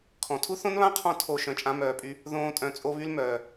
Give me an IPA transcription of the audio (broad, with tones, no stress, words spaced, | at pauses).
kʰɔ̃˨ tʰu˦θõ˦nβã˦qʰɔ̃˧ tʰo˦˨ʃœ̃˧t͡ʃʼã˦ mœː˨pʼy˧ | ðõː˦tʼœ̃˧ t͡sʼo˦βy˦l mœː˨